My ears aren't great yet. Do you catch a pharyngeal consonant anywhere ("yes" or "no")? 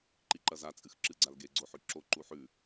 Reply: yes